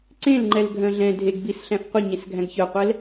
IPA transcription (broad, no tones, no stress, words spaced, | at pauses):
ǀẽlŋ͡ǃɛl ɡʱœ̃ɮɛ̃ dʱeɡbis ɬæ̃fqʷi ɲẽsɡʱæ̃ɡçœqʷɛl